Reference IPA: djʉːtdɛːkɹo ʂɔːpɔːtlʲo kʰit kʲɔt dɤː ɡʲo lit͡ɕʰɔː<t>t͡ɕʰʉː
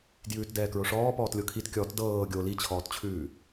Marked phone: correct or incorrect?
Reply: correct